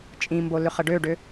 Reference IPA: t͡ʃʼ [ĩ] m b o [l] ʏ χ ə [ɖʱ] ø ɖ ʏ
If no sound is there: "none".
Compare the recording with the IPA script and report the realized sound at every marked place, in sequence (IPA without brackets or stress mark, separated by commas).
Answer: ĩ, l, ɖ